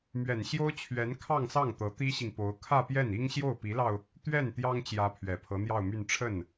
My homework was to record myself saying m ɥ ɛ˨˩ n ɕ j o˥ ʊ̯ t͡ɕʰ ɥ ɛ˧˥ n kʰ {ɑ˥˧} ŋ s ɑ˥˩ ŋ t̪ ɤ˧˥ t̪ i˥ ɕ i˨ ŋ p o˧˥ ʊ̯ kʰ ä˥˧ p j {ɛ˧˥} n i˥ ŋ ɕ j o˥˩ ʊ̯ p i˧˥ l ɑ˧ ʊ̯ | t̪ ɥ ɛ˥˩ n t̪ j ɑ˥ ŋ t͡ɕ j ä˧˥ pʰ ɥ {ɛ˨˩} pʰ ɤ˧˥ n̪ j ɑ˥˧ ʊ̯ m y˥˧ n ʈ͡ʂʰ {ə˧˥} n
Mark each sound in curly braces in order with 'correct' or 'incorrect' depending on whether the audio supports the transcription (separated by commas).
correct, incorrect, correct, incorrect